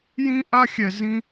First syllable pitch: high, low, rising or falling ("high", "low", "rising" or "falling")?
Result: high